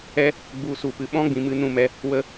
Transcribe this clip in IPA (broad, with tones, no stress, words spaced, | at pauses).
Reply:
ɛ˦ | ɡ͡bu˨˦ su˨pɨ˨ ɓɔ̃˦ɡ͡bĩ˨ mɨ˧nũ˦˨ mɛ˧ | wə˧